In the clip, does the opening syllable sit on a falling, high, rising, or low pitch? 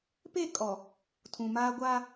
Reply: falling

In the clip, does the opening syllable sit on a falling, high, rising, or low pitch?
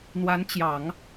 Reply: rising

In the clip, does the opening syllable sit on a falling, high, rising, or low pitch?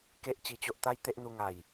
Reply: high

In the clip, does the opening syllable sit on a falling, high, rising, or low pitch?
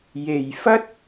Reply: low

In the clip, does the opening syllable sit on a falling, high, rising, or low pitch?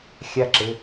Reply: high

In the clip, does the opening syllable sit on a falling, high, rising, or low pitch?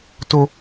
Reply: high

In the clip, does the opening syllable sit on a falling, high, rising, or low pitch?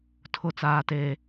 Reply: falling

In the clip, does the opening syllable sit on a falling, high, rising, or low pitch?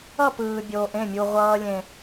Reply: falling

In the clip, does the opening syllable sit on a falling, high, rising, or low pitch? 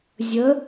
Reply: rising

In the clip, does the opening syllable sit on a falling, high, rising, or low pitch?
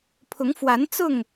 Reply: rising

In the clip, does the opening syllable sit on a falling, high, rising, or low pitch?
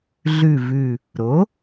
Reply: low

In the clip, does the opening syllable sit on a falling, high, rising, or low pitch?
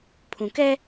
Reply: low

